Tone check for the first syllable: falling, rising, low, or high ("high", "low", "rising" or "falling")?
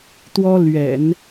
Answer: high